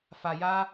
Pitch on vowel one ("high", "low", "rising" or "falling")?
low